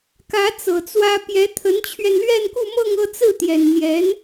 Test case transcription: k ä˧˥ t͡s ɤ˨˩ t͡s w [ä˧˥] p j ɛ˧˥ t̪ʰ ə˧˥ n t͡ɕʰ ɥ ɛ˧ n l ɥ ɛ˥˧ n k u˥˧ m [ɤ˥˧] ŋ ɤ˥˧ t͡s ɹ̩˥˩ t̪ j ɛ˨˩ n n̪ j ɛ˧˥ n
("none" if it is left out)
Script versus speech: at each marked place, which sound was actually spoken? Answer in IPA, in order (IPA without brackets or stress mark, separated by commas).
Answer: ä˥, ɤ˥˧